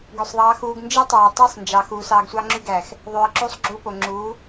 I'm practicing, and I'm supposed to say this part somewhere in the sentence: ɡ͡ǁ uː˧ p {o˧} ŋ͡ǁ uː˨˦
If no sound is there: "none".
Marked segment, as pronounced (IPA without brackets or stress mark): o˨